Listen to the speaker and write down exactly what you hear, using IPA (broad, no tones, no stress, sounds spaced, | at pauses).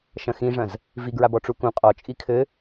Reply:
ʃ ɐ̃ x ĩ ʐ ɐ̃ z | v i ɡ ɹ a b ɔ ʈ͡ʂ u k ũ qʼ ɔ t͡ʃʼ i kʰ ɘ